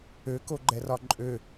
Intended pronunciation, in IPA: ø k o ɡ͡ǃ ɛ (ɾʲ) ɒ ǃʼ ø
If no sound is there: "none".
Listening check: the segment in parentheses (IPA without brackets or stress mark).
r